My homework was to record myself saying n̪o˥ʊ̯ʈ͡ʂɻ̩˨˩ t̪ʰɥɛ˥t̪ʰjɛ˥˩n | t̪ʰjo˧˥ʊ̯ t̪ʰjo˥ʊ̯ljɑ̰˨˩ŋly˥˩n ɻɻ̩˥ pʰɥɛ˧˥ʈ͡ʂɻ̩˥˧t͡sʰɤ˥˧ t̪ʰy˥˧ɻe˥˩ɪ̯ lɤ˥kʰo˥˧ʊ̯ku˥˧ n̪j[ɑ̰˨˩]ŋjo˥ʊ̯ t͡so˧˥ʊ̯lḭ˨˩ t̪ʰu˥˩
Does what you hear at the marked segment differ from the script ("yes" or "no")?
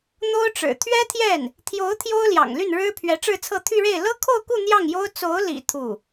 yes